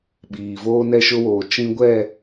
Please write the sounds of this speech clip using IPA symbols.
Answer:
ɓ iː˨ v oː˦ n ɛ˦ ʃ ʊ˦ w oː˨ t͡ʃ ĩ˦ ɡʷ ɛ˦˨

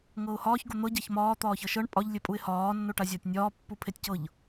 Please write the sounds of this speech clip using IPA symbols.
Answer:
ŋ ɤ ʊ̯ h ɒː ç ɡ o n̪ ɤ ɟ a ç m ɒː t̪ ɒː ç ɤ ʃ ɤ ɳ pʼ ɒ ʎ lʲ e pʼ u ɪ̯ h ɒː nː o ʈ a zʲ ɒ tʲ nʲ ɒː pː u pʰ e tʲ c ɤ ʎ

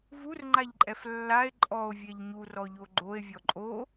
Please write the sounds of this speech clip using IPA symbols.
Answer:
v u r ŋ͡ǃ a ʎ ǃʼ ɛ f lː a e̯ ǃʼ ɔ o̯ vʲ ɛ ʎ ɲ u r ɔ ʎ o ɡ͡ǃ o e̯ vʲ ɔ ǃʼ o

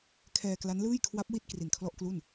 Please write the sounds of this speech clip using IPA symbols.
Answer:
kʰ ɛː˧ k l a˦˥ n l ɯː˥˩ j kʰ w a˦˥ p̚ w i˥˩ t̚ k r i˨˩ n kʰ l ɔ˥˩ ʔ k l u˥˩ n

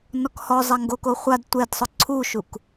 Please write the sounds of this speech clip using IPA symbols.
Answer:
n ɔ k h ɔ zˤ a ŋ ɡ o k o χʷ a d tʷ ɛ d sˤ ʊ ǀʰ u ʃ u k

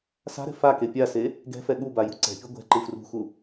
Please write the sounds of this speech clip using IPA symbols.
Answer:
s a̤ ɾ ɛ̤ f a k e pʲ a s e | ɡ ɛ̤ f ɛ ɠ u b a j ṳ ǀ ɛ̤ pʲ u ɡʷ ɛ̤ ǃ ɯ f r ṳ x u

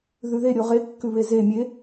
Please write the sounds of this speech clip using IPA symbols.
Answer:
ð ʉ ð e ɾʲ o ʁ e kː ʉ β e z e mʲ e

